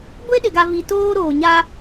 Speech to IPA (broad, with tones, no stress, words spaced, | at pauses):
ɡʷe˦ɗɪ˨ɡa˨vi˨ toː˦ɾoː˨ɲa˦